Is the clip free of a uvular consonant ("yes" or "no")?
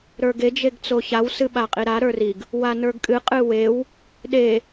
no